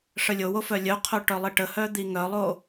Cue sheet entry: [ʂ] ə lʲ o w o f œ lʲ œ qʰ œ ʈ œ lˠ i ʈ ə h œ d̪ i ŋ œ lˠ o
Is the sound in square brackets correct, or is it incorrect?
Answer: correct